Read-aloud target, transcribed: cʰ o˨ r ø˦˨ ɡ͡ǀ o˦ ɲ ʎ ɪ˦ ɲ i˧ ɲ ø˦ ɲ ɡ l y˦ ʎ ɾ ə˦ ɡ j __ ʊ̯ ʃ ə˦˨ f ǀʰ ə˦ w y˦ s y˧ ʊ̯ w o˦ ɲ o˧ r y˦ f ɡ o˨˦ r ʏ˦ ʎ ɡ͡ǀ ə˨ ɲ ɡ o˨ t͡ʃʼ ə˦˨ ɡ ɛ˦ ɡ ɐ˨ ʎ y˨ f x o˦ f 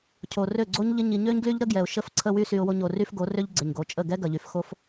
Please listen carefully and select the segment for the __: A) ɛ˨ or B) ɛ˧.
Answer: A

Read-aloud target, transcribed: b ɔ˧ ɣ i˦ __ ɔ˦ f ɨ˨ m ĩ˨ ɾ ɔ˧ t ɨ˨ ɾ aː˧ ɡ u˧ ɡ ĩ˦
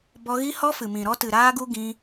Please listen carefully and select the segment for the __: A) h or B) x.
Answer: A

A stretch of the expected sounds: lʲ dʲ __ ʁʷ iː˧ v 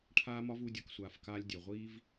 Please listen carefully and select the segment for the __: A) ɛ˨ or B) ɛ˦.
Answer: A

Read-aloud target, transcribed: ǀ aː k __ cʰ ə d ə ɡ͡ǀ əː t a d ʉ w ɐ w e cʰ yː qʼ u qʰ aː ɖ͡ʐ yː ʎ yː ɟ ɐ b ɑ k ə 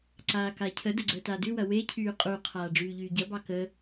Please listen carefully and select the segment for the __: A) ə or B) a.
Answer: B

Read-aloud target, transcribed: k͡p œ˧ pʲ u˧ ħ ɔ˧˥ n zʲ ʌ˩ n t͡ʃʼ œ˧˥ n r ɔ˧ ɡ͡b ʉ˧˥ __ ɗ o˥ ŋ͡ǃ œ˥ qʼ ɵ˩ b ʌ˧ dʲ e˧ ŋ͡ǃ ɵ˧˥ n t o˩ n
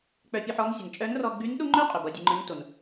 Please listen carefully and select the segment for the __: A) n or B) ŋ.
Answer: A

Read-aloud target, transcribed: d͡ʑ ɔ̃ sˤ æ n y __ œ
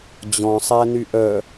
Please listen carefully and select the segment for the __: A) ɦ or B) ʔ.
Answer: B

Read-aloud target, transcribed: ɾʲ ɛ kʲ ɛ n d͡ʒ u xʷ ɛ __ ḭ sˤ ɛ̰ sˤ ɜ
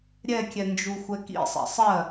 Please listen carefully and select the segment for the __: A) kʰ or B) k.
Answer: B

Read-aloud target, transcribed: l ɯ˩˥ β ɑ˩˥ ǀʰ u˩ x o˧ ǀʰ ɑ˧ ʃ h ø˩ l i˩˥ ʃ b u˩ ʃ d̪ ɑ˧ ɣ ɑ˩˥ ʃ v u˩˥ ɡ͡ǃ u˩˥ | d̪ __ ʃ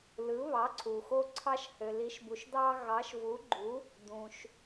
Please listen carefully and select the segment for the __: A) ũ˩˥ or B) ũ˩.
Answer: B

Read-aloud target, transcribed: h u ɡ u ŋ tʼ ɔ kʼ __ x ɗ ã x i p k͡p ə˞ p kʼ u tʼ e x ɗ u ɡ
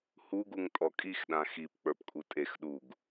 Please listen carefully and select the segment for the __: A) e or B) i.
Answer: B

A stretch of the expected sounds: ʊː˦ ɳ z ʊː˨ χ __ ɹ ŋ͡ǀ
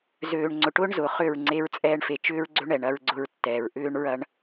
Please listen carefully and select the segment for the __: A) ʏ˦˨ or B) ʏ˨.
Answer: A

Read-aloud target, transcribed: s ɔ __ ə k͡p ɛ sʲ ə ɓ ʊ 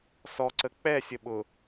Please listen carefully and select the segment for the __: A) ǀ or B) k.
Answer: A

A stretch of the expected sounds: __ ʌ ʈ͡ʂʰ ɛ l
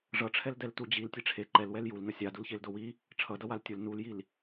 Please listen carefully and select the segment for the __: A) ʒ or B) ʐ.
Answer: B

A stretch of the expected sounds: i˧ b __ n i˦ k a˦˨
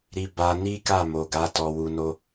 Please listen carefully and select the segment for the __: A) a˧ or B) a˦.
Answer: A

